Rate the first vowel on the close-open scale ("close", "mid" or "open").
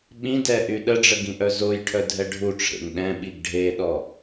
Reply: close